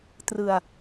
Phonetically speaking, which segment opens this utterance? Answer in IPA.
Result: t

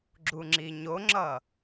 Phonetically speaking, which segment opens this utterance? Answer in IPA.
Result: ɡ͡ǁ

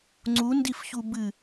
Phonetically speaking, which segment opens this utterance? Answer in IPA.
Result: ŋ͡ǀ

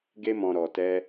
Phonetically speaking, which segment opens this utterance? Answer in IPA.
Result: ɡ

